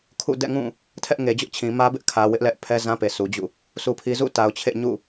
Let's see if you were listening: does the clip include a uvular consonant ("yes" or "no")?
no